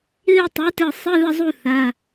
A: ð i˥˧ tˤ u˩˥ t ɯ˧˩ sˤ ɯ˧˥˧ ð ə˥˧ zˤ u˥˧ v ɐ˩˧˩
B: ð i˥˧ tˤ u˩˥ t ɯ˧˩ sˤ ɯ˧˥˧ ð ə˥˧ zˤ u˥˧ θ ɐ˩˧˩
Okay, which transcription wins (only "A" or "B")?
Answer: B